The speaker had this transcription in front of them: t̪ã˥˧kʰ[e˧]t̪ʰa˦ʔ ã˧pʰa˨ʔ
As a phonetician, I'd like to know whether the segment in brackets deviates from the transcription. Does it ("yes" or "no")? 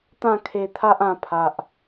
no